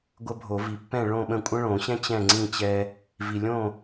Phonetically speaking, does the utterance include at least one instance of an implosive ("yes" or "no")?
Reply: yes